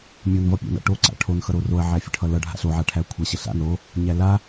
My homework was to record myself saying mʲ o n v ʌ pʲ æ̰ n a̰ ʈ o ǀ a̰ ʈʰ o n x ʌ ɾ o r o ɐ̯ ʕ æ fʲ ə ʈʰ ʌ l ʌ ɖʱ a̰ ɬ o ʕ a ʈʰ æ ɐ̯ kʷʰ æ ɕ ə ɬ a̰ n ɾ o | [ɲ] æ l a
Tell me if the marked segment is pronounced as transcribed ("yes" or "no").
yes